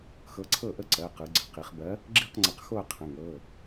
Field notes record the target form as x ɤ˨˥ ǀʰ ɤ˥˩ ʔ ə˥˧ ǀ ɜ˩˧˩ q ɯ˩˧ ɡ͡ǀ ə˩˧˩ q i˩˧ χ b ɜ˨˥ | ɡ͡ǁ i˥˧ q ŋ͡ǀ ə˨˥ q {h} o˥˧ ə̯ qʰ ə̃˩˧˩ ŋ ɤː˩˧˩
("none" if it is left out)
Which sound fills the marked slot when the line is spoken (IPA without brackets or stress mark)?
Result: x